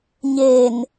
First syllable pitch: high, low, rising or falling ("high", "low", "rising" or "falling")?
low